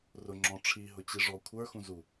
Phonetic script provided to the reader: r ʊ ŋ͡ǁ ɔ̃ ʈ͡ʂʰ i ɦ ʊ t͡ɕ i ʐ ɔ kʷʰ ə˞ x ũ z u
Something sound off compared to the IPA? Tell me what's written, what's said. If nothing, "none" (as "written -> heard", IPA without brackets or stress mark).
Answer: none